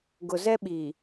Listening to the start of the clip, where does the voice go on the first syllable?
low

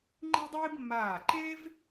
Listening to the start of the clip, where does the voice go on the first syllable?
high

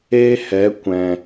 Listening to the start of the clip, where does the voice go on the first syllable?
high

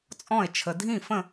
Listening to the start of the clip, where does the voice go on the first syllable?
falling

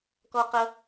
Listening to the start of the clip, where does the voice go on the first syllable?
high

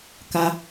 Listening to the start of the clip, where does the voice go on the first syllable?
high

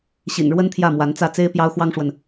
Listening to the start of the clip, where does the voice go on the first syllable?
low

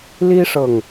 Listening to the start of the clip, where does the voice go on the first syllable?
high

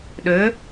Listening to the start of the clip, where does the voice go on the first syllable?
rising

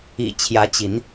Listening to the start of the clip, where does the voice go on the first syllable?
low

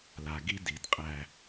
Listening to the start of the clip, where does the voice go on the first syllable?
low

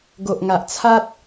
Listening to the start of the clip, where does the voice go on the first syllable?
low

